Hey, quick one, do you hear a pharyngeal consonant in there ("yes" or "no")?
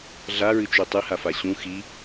no